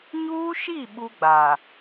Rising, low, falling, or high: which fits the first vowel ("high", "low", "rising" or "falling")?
high